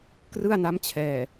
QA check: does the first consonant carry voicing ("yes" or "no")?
no